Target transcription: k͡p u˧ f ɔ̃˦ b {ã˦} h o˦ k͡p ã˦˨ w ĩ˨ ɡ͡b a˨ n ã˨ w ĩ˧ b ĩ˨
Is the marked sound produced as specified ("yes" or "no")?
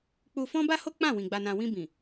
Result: no